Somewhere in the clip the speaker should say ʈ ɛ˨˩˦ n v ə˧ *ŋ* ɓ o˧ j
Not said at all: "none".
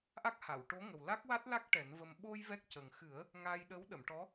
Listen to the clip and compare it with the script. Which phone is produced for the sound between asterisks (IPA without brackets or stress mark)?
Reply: m